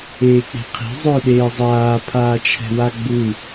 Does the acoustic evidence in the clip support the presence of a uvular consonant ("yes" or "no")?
yes